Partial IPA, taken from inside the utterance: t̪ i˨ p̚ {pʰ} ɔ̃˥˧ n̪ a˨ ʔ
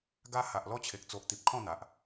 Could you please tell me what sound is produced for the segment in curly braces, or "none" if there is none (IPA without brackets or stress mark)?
kʰ